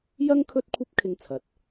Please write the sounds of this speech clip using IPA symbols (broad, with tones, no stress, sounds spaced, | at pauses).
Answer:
j ɐ˥ ŋ kʰ ɵ˥ t̚ kʷʰ ɐ˥ p̚ kʰ ɪ˧ ŋ t͡sʰ ɐ˨ t̚